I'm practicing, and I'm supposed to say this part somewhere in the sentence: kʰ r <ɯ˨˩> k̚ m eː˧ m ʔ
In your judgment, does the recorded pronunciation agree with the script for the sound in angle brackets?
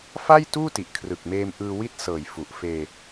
yes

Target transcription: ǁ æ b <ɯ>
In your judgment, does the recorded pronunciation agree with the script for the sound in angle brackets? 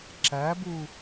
no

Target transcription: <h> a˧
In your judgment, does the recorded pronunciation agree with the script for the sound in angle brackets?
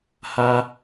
yes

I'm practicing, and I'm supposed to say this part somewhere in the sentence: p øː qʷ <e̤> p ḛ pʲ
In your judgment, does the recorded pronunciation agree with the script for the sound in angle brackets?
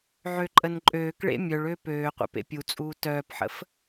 no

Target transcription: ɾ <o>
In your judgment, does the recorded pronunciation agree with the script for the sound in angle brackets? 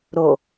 yes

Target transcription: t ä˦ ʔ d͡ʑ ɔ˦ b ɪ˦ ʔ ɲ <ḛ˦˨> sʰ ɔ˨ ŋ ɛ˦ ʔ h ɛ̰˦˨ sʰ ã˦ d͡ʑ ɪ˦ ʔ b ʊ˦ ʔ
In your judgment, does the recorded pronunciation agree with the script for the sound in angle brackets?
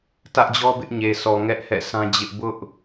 no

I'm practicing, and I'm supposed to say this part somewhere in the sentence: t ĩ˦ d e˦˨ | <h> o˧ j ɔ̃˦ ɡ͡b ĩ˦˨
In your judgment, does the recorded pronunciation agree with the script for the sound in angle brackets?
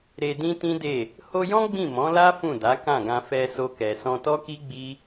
yes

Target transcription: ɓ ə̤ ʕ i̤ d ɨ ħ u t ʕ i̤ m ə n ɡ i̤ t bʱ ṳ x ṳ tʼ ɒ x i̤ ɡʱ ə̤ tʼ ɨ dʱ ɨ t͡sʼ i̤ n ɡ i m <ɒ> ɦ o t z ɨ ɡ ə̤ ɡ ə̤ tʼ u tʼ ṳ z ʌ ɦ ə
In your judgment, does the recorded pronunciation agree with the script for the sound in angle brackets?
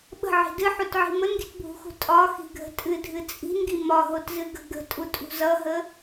yes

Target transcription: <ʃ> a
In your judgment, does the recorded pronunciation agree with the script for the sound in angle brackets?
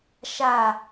yes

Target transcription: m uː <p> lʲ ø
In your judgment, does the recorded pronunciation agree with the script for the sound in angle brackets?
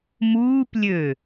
yes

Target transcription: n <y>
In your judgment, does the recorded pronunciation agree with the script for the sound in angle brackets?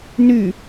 yes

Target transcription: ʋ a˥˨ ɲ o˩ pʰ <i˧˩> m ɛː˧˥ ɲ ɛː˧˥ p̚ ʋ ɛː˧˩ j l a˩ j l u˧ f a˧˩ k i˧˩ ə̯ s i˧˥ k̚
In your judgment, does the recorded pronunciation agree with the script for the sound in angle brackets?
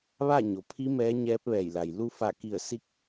no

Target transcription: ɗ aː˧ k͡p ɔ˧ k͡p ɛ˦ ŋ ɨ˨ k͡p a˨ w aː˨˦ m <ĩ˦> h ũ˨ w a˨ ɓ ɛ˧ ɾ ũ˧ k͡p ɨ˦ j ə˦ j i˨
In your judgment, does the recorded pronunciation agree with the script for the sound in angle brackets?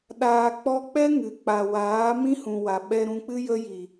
yes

